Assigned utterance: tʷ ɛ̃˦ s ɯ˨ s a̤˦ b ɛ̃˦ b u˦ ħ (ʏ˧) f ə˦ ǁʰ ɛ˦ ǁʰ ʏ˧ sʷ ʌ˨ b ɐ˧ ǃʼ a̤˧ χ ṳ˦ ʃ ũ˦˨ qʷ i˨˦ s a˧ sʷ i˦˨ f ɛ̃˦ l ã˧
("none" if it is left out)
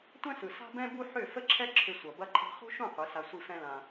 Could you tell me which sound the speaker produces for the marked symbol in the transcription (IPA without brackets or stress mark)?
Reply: ʏ˦˨